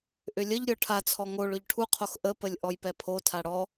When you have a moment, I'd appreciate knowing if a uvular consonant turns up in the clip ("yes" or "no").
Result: yes